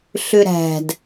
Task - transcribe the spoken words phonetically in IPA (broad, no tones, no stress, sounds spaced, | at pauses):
ɬ ʏ ɾ æ̤ d